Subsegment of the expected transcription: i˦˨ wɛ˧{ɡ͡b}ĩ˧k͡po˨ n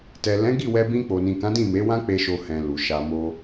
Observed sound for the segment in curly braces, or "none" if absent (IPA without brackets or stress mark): b